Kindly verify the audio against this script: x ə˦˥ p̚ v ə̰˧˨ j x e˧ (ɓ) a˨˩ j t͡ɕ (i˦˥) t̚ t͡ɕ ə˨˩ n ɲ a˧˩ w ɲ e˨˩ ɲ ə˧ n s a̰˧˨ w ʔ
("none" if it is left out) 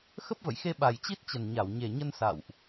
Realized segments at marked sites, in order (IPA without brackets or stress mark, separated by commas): ɓ, i˦˥